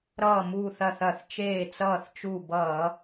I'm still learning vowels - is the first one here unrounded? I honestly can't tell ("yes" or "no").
yes